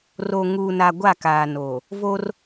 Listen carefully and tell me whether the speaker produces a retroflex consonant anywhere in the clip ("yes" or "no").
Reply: no